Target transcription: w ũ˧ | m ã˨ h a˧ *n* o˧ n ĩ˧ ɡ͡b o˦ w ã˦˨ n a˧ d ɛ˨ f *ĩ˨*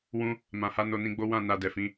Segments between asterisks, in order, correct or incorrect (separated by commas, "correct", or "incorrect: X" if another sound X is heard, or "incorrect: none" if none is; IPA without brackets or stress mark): correct, incorrect: ĩ˧